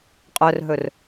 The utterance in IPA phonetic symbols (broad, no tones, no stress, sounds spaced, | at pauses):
qʼ œ r ɦ ɵ r